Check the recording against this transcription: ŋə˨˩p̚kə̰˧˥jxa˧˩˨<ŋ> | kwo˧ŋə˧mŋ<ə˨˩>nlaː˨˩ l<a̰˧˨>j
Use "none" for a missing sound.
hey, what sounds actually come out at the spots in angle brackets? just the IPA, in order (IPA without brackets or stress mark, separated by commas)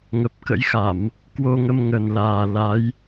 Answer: m, ə˨˩, a˨˦